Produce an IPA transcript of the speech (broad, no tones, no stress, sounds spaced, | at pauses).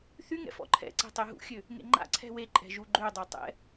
θ y ŋ ɛ̰ f ɔ̰ ǃʰ ɛ̰ ǀ ɛ̤ tˤ e ɦ ṵ xʲ ø | ŋ ḛ ŋ͡ǃ a̰ ǀʰ ɛ̤ w e ǃʼ ɛ̤ ʒ u ɡ͡ǃ ø dˤ o tˤ ɛ̰